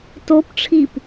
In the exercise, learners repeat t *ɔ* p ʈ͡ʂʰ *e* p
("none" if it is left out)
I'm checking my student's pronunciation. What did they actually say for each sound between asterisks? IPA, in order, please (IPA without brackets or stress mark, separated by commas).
o, i